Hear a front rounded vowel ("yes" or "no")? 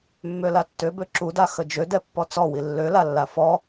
yes